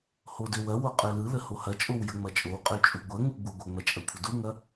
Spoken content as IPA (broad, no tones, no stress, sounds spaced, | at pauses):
h o d ø w ɐ w o qʼ ø l ɯ l ə h o h ɐ t͡ʃʼ o w j ə ŋ͡m ɐ t͡ʃʼ o w qʼ ø t͡ʃʼ u ɡʷ ɐ ŋ u ɡ͡b u ɡʷ ə ŋ͡m ɐ t͡ʃʼ ɐ kʷʰ ɐ d u ŋ ɐ